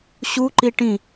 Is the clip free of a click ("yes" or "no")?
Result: no